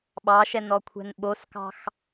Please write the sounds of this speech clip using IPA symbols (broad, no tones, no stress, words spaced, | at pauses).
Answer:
ɓɑʃɛnɔkʷʰɛ̤n ɓoskɑ̤x